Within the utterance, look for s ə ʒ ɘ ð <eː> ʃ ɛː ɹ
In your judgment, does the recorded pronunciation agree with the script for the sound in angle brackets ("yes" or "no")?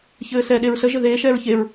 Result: yes